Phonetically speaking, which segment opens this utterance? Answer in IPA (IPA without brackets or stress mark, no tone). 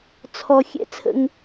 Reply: t͡sʰ